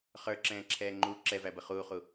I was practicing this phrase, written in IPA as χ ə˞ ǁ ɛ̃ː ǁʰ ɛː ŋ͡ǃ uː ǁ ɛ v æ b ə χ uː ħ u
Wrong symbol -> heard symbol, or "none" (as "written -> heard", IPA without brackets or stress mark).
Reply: ħ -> χ